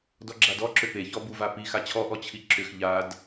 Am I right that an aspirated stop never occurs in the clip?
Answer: no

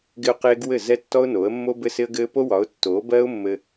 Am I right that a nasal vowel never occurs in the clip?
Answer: yes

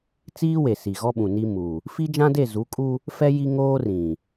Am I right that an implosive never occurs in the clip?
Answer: no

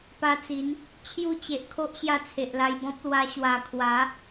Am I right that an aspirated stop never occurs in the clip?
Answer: no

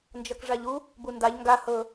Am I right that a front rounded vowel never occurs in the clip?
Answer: yes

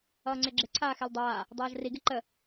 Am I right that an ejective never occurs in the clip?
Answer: yes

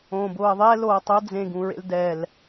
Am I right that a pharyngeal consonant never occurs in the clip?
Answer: yes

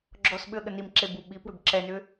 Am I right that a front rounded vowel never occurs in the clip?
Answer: no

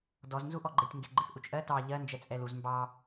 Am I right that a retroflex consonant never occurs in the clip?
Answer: yes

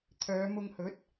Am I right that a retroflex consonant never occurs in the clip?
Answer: yes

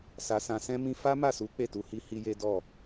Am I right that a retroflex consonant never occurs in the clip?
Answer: yes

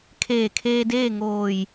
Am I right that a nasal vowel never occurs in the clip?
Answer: yes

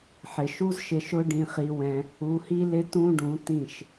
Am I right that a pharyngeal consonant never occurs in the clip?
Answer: no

